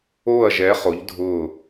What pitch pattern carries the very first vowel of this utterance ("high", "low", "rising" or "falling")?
falling